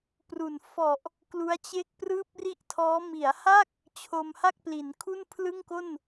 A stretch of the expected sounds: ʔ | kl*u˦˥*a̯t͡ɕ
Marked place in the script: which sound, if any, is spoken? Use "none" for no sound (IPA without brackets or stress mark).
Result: u˦˥